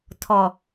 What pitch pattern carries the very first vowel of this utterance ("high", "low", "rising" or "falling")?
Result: low